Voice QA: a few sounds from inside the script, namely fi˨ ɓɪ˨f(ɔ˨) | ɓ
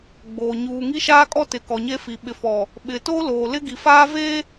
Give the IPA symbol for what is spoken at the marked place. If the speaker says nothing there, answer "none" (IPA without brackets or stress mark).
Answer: ɔ˨